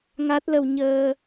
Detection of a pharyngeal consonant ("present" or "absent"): absent